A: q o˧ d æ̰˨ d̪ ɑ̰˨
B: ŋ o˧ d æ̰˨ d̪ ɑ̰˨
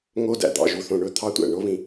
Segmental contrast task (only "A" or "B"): B